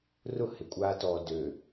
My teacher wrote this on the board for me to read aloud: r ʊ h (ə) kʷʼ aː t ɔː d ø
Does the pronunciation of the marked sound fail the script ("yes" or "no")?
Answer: yes